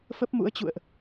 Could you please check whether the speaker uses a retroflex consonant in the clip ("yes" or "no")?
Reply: no